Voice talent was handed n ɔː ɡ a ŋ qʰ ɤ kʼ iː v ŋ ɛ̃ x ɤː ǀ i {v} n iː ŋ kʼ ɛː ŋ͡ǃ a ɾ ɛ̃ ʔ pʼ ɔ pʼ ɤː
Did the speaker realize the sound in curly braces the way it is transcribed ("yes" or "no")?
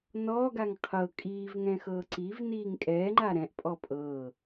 yes